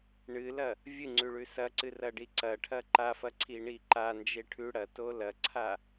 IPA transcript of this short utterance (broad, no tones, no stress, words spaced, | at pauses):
ɳɨlɐ | vʲɨŋ͡ǀʉ ɭʉsɐǀɨ rɐɖiǀɐʈʰɐ ǃafɐ ǀʰiɳiǃand͡ʒe ʈʰʉ ɽɐto lɐǀʰa